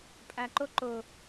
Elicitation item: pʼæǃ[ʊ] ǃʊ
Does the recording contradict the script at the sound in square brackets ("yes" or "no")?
no